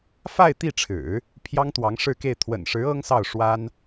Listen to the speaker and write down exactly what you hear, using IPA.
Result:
f a˥˧ ɪ̯ t̪ i˥˩ ʈ͡ʂʰ ɻ̩˨˩˦ | pʰ j ɑ˥ ŋ t̪ w ɑ˧˥ ŋ ʂ ɻ̩˥˧ k e˥˩ ɪ̯ t̪ʰ w ə̰˨˩ n ʂ ɻ̩˧˥ ɤ˥ ŋ s ɑ˥˩ ʊ̯ ʂ w a˥ n

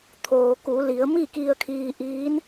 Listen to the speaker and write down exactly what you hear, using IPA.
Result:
t̪ʰ oː˩ k u˩˧ l i˩˧ ə̯ m i˥˨ k i˧ ə̯ kʰ iː˧ ʔ iː˧˥ n

